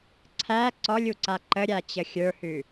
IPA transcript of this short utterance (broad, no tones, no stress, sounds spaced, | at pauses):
ǀʰ æ ǀ ɔ lʲ u ǀ a ǃ ə ɾʲ a t͡ɕ ə xʲ ə˞ h ʉ